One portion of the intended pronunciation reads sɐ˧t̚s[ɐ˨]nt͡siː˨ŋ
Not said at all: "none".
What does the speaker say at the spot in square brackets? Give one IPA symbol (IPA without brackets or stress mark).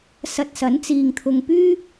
ɐ˨˥